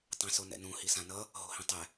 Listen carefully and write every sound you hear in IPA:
tˤ ẽ s o n ɛ̰ n ũ h i s ã n ʌ | ɦ o̤ h ĩ tˤ ɛ

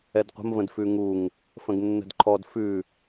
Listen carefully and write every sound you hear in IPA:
ɛ d qʷ ə̤ m v ə̃ d f ʉ ŋ u ŋ | f ə̃ ɡ nː ə̤ d ǃʰ ɔ d f ʉ

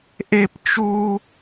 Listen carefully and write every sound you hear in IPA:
ʔ e˥ p t͡ʃ u˥

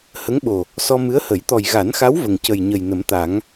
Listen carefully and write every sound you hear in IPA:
h ə˧˥ ŋ ɓ o˨˩ | s ɔ˧ m ɨ˧˥ ə̯ h ə˨˩˦ j t̪ ɔ˨˩ j ɣ a˨˩˦ n x a˧˥ w v ə˨˩ ŋ c ə˨˩ j ɲ ə˨˩ j n ə˨˩˦ m t̪ a˨˩˦ ŋ

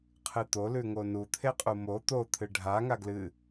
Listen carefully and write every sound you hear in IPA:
qʰ ɨ t̪ o l ʉ ŋ o n u t̪ʰ e qʼ u m o t̪ o t̪ʰ ɨ ɖʱ a ŋ a ɡ l ɨ

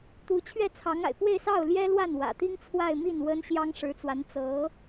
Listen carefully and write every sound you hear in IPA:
t̪ u˧˥ t͡ɕʰ ɥ ɛ˥˩ t͡sʰ ɑ˧˥ ŋ a̰˨˩ ɪ̯ p w e˥˧ ɪ̯ s ɑ˥˩ ʊ̯ l j ɛ˥ l w a˥˩ n w ä̰˨˩ t̪ i˥ ŋ t͡sʰ w a˥˧ ɪ̯ m i˥˩ n w ə˥ n ɕ j ɑ˥ ŋ ʂ ɻ̩˧˥ t͡s w a˧˥ n t͡s ɤ˧˥

